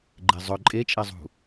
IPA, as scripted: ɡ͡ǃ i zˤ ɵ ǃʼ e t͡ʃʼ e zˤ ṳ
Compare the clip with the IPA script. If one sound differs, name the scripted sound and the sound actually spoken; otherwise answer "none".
i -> e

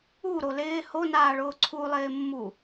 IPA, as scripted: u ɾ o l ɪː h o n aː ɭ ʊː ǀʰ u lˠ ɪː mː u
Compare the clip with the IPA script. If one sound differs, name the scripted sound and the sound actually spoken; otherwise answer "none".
none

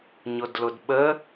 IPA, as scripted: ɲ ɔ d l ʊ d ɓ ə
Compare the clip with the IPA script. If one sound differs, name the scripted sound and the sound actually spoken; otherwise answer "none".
ɔ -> ʊ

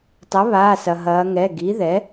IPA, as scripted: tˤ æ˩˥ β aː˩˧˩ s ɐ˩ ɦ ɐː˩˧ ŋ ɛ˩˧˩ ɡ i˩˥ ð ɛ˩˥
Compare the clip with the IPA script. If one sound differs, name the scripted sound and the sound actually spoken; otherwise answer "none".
æ˩˥ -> ɐ˩˥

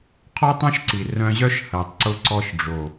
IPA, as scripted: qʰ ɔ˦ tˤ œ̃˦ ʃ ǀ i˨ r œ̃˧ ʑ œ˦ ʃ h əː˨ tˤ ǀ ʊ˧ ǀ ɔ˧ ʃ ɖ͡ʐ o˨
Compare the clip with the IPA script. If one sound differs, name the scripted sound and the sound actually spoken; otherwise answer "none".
none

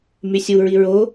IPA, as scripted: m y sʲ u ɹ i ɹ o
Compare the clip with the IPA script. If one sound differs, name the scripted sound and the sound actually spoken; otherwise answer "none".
none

